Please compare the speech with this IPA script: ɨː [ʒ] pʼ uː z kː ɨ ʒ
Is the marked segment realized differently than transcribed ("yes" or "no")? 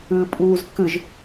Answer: yes